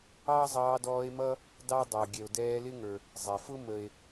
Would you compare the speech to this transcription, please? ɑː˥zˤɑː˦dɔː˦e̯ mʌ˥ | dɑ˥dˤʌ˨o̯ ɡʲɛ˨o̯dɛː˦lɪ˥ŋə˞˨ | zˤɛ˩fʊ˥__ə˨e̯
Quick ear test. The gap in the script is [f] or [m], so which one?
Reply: m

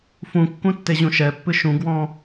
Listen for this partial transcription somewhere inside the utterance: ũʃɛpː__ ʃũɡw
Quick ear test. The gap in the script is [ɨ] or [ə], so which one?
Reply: ɨ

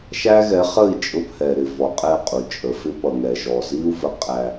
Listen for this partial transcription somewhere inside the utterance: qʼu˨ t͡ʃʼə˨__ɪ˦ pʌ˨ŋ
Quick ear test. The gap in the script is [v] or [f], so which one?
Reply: f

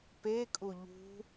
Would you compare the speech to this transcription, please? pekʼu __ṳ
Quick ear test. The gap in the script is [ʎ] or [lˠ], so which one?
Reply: ʎ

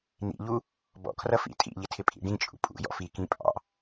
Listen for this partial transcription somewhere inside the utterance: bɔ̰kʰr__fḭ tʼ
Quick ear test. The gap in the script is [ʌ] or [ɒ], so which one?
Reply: ʌ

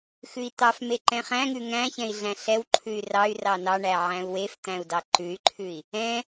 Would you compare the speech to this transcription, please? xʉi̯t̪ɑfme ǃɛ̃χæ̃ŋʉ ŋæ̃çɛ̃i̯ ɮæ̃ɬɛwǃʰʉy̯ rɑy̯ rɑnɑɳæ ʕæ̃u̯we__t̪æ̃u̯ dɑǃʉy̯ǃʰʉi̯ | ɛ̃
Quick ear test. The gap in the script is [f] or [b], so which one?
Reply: f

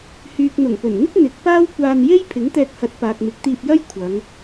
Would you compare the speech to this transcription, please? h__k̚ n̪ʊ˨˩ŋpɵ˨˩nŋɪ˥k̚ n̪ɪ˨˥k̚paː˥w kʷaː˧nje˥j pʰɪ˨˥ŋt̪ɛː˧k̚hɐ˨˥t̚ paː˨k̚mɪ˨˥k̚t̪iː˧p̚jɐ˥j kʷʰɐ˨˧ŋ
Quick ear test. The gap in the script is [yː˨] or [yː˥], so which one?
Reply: yː˨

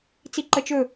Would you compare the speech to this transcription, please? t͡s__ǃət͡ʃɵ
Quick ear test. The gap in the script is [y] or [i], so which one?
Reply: i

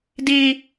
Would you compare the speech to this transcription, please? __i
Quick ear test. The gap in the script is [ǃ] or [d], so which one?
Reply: d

